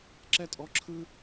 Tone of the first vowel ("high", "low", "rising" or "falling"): high